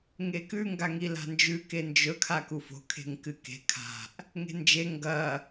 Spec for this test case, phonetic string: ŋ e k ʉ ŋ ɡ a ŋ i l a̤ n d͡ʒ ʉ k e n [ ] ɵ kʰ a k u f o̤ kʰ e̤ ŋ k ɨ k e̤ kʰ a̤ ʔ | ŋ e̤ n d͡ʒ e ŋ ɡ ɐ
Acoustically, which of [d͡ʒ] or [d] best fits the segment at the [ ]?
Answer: d͡ʒ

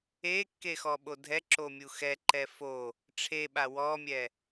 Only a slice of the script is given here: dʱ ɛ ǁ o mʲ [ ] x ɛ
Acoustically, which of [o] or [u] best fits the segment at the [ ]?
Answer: u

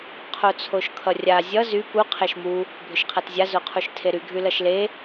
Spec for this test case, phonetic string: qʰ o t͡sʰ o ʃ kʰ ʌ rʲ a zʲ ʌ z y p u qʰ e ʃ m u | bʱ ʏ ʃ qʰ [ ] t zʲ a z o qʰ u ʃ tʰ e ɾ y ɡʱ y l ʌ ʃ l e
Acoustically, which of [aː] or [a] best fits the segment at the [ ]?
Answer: a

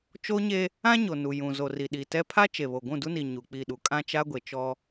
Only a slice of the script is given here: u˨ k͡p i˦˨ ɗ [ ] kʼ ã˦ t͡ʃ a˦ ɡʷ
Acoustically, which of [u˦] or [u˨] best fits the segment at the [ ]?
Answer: u˦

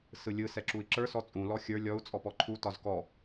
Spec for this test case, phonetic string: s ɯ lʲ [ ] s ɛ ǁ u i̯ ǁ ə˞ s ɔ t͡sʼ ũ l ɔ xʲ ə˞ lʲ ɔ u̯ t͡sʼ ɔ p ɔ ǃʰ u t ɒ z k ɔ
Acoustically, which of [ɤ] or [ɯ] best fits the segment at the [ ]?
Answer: ɯ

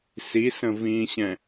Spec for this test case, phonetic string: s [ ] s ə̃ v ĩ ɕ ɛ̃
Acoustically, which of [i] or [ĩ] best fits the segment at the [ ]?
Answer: i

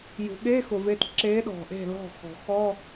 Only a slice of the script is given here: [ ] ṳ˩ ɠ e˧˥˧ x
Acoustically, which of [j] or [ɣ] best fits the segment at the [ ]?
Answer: j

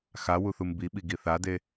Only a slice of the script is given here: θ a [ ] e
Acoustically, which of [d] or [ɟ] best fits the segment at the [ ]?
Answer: d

